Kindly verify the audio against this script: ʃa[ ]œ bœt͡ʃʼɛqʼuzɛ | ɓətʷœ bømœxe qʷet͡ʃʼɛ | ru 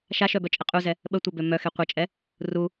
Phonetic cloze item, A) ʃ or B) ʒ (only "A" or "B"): A